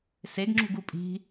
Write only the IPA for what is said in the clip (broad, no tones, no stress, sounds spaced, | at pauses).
s e ɡ ŋ͡ǁ ṳ ɡ u pʼ i̤